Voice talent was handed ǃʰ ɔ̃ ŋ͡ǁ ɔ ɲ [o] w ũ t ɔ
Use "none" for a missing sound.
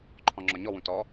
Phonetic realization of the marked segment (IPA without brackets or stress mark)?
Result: ɔ